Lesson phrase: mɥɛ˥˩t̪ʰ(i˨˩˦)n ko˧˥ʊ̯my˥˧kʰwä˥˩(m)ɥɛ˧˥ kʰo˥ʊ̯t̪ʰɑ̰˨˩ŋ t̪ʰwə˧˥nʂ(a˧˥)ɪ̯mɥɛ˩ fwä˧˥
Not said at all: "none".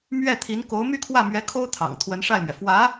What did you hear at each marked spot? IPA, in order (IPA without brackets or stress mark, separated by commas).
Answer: i˧˥, m, a˥˩